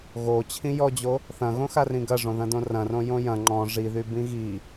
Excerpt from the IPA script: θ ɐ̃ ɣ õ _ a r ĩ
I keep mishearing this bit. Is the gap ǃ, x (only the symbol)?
x